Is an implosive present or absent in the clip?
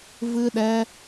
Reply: present